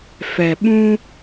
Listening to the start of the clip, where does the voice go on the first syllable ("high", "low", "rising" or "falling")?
low